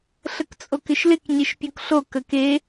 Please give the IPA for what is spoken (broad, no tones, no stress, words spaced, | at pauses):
ɬəkt͡sʼokɪʃlɪk ɲeʃpʲokɬo kəke